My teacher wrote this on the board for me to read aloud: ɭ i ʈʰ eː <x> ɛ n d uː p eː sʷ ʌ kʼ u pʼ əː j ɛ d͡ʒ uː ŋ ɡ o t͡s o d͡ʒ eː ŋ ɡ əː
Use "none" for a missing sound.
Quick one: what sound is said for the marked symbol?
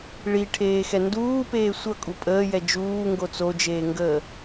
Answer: x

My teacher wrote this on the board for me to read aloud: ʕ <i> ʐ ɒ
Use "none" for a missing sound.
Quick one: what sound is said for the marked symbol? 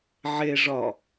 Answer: e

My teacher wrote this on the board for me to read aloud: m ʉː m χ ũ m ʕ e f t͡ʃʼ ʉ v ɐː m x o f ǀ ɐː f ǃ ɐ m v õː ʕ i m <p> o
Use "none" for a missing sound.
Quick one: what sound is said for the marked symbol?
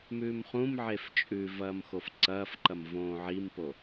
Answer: p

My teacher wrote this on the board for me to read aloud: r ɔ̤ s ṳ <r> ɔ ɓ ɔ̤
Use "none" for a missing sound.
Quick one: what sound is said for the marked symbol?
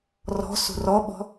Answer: r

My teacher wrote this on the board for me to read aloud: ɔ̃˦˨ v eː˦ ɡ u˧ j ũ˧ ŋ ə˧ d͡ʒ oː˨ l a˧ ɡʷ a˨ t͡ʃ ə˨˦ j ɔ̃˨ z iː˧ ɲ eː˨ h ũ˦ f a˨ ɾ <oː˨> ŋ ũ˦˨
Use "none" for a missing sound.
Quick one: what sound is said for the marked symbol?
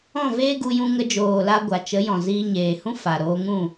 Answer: oː˧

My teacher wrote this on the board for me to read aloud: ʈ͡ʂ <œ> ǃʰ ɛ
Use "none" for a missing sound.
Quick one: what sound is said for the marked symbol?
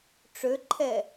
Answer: ø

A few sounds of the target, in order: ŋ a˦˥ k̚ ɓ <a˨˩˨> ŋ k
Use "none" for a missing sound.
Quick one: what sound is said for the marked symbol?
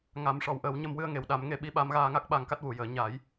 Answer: a˧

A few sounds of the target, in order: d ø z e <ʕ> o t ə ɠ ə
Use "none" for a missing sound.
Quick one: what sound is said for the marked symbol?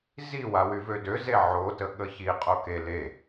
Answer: ʕ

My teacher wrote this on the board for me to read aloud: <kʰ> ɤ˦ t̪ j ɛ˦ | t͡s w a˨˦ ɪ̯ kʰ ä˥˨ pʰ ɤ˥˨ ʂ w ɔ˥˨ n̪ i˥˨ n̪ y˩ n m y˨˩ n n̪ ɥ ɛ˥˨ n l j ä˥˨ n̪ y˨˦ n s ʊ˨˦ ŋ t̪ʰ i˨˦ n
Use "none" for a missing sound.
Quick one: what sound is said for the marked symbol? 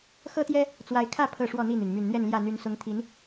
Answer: x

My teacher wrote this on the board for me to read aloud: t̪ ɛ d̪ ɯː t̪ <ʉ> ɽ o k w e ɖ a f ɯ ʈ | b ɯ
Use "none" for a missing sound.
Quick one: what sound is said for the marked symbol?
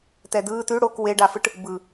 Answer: ʉ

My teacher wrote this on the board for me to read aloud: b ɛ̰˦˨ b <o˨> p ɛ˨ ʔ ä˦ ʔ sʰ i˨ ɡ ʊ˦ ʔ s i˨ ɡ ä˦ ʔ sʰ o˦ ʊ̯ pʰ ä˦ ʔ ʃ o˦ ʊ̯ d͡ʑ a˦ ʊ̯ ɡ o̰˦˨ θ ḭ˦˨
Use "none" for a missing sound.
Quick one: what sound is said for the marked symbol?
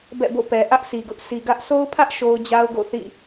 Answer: o̰˦˨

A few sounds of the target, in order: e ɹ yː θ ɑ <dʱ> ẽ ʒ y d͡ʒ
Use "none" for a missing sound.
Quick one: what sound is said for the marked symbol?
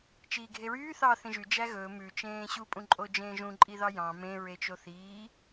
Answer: θ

